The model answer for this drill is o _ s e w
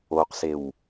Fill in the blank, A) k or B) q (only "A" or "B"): B